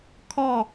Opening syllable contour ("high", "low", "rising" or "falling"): falling